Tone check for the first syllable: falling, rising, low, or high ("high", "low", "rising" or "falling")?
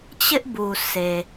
high